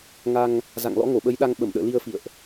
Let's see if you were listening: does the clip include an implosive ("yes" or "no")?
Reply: yes